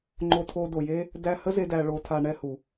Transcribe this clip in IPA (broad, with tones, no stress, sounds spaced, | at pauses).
ŋ͡ǃ o˧ tʰ o˧ d o˨ j e˦ | d æ˧ h ə˦ z e˧ d æ˧ ɭ o˧ tʰ a˧ ɳ ɛ˧ h u˨